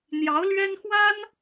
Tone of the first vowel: rising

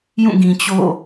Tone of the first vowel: falling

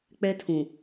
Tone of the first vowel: high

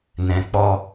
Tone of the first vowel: low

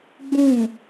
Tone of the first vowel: falling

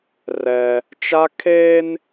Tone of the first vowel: high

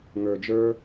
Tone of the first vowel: low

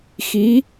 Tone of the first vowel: rising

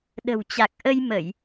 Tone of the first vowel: low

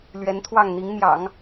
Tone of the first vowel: rising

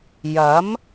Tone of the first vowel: rising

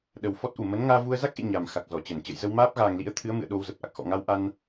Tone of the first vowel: low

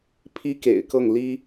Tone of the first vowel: high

